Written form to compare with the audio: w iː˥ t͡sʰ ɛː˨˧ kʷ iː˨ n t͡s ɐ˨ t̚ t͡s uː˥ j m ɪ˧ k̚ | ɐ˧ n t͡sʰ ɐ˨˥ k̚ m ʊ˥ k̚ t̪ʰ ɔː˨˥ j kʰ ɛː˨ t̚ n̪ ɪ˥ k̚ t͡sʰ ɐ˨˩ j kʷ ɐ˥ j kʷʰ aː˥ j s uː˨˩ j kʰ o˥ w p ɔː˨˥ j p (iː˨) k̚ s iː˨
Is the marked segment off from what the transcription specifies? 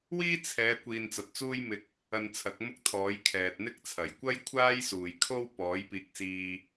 no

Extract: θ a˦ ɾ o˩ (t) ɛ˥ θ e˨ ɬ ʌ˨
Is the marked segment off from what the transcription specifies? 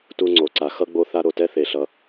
no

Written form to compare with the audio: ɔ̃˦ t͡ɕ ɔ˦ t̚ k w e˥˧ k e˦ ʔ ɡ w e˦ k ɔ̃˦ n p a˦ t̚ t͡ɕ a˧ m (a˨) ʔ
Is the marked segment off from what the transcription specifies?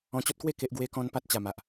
no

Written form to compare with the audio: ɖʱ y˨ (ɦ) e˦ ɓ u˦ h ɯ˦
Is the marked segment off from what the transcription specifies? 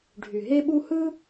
no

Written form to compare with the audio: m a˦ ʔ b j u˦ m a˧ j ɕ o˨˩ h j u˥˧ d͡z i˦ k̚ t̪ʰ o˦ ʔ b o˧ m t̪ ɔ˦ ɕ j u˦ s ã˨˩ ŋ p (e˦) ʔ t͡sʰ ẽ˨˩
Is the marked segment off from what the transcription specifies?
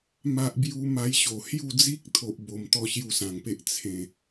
no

